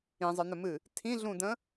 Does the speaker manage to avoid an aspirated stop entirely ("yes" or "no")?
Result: no